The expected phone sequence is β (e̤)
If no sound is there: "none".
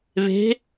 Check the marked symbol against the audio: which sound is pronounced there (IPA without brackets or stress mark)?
e̤